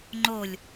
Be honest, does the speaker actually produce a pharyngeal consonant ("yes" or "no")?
no